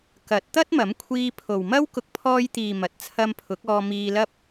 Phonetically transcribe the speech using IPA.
kɐ˨˥t̚ t̪ɐ˥t̚mɐ˨˥mkʷʰiː˧ pʰo˨wmɐ˥wkʊ˧k̚ pʰɔː˧jt̪iː˨ mɐ˨t̚t͡sʰɐ˧m pʰʊ˨˥k̚ɔː˧miː˧lɐ˥p̚

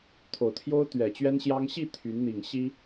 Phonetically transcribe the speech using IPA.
t̪ʰo˨˩ʊ̯t̪ʰjo˥ʊ̯ t̪ɥɛ˨˩t͡ɕɥɛ˥nɕjɑ˥ŋ ɕi˥˩ t̪ʰy˧˥nn̪i˨˩ŋ ɕi˥

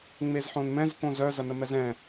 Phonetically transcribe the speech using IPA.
ŋ͡mezħõnmɛ̃z kõzœ zɐnəmɛzɛ̃

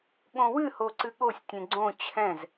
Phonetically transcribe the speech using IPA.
ɠõwɨ hoǀɨɠosʲ tʲẽɡ͡ǀõ t͡ɕʰɛ̃z

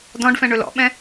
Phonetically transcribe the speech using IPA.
dɔ̃ɖfɛ̃ɳɵ lɔ̰ɓɛ̃

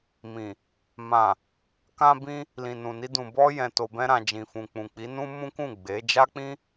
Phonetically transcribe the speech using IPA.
mĩ˨ | mã˨ | kã˧bĩ˧ | lĩ˨nũ˨ni˧dũ˨ bɔ˧ jɛ̃˨ to˨bɛ̃˧ɾã˨ d͡ʒĩ˨fũ˨k͡pũ˨ k͡pi˨˦ nũ˦mũ˦kũ˦˨ ɡ͡be˨˦ d͡ʒa˦k͡pĩ˦

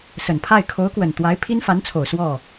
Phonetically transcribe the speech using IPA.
sə˨˩npʰa˥˩ɪ̯ kʰo˧˥ʊ̯kwə˨˩n t̪wa˧˥ɪ̯pʰi˥nfa˧˥nt͡sʰo˨˩ʊ̯ swɔ˥˩

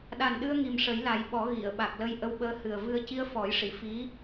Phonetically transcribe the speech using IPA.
ɗa˨˩nɗɨ˧ə̯ ŋi˨˩mʂə˨˩˦jla˨˩˦jɓɔ˨˩˦ ɣi˨˩˨ə̯ ɓa˨˩k̚lə˧jʔə˧wɓəː˧ hɨ˨˩ə̯ vɨ˧ə̯ ci˧ə̯fɔ˨˩˦jʂi˨˩˨ fi˧˥

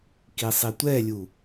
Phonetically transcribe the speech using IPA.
kisˤitʷɛlʲu

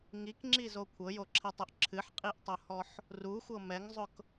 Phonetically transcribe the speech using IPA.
ŋikŋ͡ǁizo kʷʰɤjoǁʰɛtˤʊʔ ǁʰɨħqʼiʔtˤohɔħ | ruxʷɤ mɛŋzˤʊk

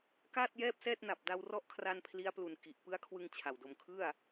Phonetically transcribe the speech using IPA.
kaː˥˩t̚jɛː˥˩p̚sɛː˥˩t̚na˨˩p̚ da˧wrɔ˦˥ʔkʰra˧n pʰli˦˥a̯plu˨˩n ki˨˩ʔ pɯ˦˥a̯kʰwɯ˧ŋ t͡ɕʰa˨˩wdo˧m kʰɯ˥˩a̯

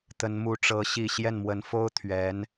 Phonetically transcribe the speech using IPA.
t̪ə˧˥nmu˧˥ʈ͡ʂɤ˧˥ ɕi˥˧ ɕjɛ˥˩nmwə˧˥n fo˥ʊ̯t̪ʰɥɛ˧˥n

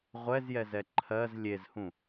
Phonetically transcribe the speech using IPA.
ʁʷɛzjɛzɛ ǃʰɜz lʲezhũ

